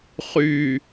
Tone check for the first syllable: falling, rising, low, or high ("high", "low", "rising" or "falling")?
low